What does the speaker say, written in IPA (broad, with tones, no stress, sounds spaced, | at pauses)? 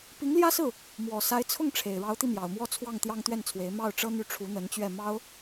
p i˧˥ ŋ l j ä˥ s ɹ̩˥˩ | m w ɔ˨˩ s a˧˥ ɪ̯ t͡sʰ ʊ˥˩ ŋ ʈ͡ʂʰ e˨˩ ɪ̯ ɻ ɑ˧˥ ʊ̯ t̪ i˧ m j ɑ˨˩ ʊ̯ m w ɔ˥˧ t͡sʰ w ɑ˥˩ ŋ t̪ j ɑ˥ ŋ t̪ ɥ ɛ˥˩ n t͡sʰ w e˧˥ ɪ̯ m ɑ˥˩ ʊ̯ ʈ͡ʂ ɤ˥ n̪ y˥˩ ʈ͡ʂʰ u˧˥ n̪ ə˧˥ n t͡ɕ ɥ ɛ˥˩ m ɑ˥ ʊ̯